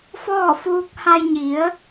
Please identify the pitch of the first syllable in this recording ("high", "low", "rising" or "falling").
falling